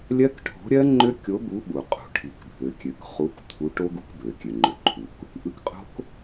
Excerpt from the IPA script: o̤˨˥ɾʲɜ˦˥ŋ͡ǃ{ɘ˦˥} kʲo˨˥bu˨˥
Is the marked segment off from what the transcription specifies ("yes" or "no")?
yes